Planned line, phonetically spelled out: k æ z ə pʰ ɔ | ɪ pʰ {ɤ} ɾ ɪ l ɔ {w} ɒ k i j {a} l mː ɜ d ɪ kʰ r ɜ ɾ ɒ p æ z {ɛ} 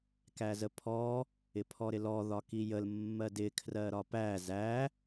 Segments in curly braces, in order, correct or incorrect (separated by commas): incorrect, incorrect, incorrect, incorrect